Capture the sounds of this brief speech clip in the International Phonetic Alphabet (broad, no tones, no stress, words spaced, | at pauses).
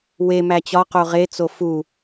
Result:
we mæt͡ɕɒ qoʁe t͡sofu